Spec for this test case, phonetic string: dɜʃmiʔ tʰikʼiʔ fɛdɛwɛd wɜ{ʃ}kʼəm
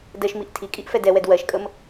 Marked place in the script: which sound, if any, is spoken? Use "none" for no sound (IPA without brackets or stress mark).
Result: ʃ